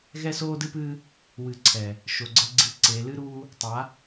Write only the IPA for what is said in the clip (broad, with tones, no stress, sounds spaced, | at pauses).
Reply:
ɣ ɛ˦ s oː˦ d ɨ˦ p ɨː˦ | w ɨ˨ ǀʰ ɛ˨ | ʃ o˨ ɡ͡ǀ ɘ˦ ɡ͡ǀ i˦ ǀ e˨˦ l ɨ˦ ɾ uː˦ | tˤ a˨˦